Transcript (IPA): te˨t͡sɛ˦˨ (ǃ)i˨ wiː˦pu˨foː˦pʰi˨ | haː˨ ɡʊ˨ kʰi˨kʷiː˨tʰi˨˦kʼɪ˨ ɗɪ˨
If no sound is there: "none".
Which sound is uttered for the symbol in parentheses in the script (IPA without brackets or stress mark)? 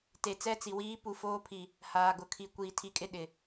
t͡s